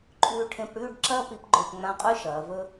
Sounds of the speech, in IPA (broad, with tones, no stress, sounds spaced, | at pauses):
ǃʼ ʉː˧ ʈʰ ẽ˧ p ɽ ʉː˥˧ ɖ ǁ ɐː˥˧ p i˧ p ɡ͡ǃ o˧˩ p ŋ͡m ã˧ qʼ ʉ˥ ʃ ɐː˩˧ v ɵ˥